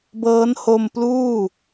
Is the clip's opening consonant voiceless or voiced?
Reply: voiced